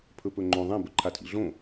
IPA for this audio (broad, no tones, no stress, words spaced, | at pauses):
pʰɵpɵŋ͡ǃõ ðˤẽ bɵǃʰatʰḭɮõ